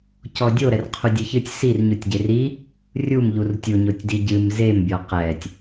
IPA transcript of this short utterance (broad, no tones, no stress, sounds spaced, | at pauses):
c ɔ dʲ o ɾ ɛ r qʰ u dʲ ɨ ç ɨ tʲ s i r ɲ u tʲ ɟ e r i | rʲ u m ʎ u r tʲ u ɲ o tʲ d i ɟ ɨ m z e m bʲ ɔ q ɛ tʲ